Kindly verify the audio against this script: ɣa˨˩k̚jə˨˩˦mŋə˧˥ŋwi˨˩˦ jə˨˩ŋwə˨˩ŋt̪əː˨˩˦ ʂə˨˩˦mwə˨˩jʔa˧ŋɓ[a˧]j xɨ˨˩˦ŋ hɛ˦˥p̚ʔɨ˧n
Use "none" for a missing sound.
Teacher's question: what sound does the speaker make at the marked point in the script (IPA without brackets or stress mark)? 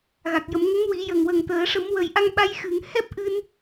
a˧